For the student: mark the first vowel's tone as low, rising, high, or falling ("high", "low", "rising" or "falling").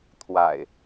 low